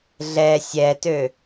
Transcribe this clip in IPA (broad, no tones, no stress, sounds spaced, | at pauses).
ɮ ɛ sʲ ɛ t ø